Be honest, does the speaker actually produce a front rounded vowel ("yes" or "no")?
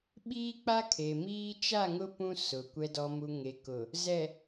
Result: no